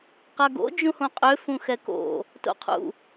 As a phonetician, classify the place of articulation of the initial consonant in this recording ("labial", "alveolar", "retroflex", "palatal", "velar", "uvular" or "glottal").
uvular